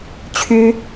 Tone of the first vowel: high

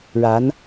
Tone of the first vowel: rising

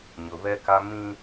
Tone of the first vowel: low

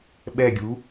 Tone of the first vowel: falling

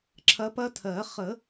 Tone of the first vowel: rising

